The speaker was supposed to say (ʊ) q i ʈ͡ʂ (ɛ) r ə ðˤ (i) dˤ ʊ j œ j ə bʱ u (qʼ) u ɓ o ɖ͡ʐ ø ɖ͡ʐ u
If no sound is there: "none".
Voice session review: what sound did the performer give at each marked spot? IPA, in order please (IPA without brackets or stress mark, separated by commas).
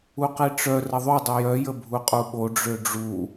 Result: u, œ, y, qʼ